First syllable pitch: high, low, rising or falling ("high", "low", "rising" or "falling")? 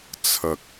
low